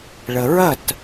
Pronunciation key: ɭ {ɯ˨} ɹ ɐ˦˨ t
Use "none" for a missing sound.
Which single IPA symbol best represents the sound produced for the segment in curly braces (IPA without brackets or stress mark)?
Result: ə˨